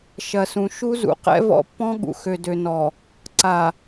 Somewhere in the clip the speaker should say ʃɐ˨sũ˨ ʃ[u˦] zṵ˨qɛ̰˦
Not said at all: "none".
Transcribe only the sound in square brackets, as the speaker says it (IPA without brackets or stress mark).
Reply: u˦